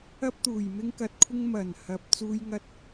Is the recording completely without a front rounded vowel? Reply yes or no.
yes